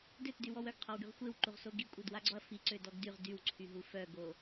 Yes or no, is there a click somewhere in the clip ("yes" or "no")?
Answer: yes